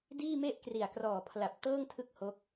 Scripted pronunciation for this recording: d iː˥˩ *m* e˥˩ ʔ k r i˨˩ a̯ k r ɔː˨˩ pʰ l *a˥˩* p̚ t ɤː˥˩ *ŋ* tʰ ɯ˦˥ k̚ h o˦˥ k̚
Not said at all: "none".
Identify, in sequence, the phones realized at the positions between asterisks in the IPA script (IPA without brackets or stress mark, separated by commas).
m, a˨˩, ŋ